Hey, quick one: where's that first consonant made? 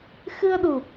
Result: velum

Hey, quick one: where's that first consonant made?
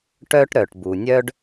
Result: retroflex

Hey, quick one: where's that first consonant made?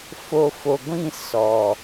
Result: lips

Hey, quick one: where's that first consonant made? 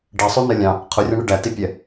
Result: retroflex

